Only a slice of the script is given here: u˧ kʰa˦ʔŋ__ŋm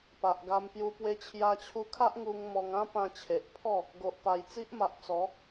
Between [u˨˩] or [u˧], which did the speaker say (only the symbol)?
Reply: u˧